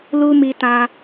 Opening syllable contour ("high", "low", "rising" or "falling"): high